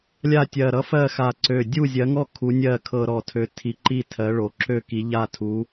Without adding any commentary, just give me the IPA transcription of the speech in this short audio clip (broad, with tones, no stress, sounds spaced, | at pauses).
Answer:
lʲ a˥˨ tʲ ɜ˧˩ ɾ ʌ˦ f ɜ˥˨ x a˧˩ ǀ ø˧˩ dʲ u˥˨ zʲ ɜ˨˥ ŋ ɔ˥˨ kʰ u˨˥ nʲ ɜ˥˨ kʰ ɤ˦ ɾ ɔ˧˩ tʰ ø˨˥ tʰ i˨˥ ǃ i˥˨ tʰ ɜ˨˥ ɭ o˩˧ ǁ ø˥˨ k i˨˥ ʎ a˥˨ tʰ u˨˥